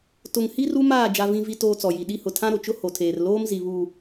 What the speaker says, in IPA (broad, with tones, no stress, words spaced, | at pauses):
tʊ˨ŋhi˦r u˦maː˦˨ d͡ʒa˦vĩ˦vi˦ toː˦t͡sɔ˨ji˨ ɗi˦hʊ˨ tʰã˦ɾo˨t͡ʃʊ˦ ho˨tʰeː˨r loː˦mzi˨βu˨